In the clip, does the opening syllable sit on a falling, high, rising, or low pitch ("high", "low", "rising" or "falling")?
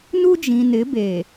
high